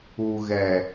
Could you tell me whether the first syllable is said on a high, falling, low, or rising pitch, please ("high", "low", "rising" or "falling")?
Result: low